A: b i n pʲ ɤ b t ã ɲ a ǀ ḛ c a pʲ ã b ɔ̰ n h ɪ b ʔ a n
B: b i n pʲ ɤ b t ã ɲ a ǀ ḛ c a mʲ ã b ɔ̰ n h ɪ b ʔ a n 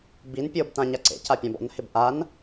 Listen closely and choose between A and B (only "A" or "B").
A